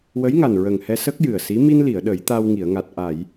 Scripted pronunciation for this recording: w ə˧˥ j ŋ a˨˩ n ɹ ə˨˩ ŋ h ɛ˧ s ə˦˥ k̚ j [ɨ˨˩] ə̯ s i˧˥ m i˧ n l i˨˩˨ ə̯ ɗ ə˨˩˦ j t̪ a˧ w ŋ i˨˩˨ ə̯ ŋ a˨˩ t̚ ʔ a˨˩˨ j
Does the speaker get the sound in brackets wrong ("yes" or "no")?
no